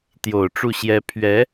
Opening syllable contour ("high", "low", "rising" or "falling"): low